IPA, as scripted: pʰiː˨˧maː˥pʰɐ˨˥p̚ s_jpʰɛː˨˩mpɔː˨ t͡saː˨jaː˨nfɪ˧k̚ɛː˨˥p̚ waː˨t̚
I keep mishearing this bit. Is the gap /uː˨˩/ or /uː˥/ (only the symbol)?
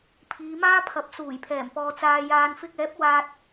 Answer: uː˨˩